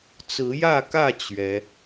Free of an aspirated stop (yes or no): yes